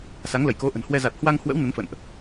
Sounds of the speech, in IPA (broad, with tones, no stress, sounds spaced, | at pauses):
s a˨˦ ŋ l ə˧˩ j k o˨˦ ʔ ə̤˨˩ n h w ɛ˧ z a˨˩ t̚ h w a˧ ŋ h w ə̰˧˥ w n ə˨˦ n f ə̰˧˨ n ʔ